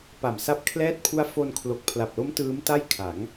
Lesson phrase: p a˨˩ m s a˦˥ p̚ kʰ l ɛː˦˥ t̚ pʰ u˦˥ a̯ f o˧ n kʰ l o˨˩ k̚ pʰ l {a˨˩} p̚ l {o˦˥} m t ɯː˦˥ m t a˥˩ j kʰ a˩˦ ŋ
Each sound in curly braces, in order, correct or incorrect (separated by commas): correct, correct